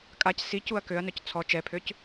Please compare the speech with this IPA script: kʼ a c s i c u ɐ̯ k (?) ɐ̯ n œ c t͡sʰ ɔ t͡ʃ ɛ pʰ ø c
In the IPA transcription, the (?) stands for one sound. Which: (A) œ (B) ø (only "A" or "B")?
B